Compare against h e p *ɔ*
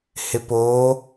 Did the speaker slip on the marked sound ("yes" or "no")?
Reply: yes